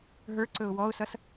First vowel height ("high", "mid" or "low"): mid